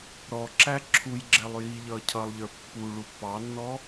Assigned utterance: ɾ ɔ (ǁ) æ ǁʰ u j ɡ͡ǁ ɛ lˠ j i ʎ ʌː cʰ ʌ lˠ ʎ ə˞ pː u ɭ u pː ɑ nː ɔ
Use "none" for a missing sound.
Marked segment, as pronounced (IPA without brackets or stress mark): ǁ